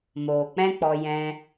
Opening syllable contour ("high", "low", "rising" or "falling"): low